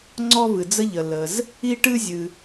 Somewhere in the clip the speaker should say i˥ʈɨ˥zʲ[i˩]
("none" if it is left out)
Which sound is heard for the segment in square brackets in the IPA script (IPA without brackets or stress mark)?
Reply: ɨ˩